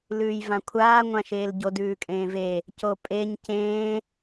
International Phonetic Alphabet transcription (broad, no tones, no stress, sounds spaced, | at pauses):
l ʉː j v ã kʷʰ aː ŋʷ ã ʃ eː l ɟ o d ʉː kʼ ẽː v e | c o pʼ e ɲ c ẽː